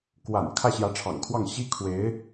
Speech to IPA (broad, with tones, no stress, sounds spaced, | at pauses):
k w a̰˨˩ n kʰ ä˥˩ ɕ j ä˧˥ ʈ͡ʂʰ ɑ̰˨˩ ŋ kʰ w ɑ˥˩ ŋ ɕ i˥ kʰ w e˧˥ ɪ̯